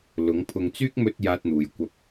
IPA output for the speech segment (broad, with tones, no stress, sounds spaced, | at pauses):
l ʊ˨˥ ŋ pʰ ʊ˧ ŋ t͡s yː˥ k̚ m ɵ˧ t̚ j aː˥ t̚ n̪ uː˨ j kʷ ɐ˥ p̚